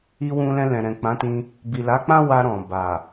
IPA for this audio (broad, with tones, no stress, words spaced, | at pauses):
i˧wũ˧lɛ̃˧ lɛ̃˨ɾɛ̃˨k͡pã˨˦tĩ˧ | bi˨la˨˦k͡pã˦ wa˧ɾɔ̃˨ ba˨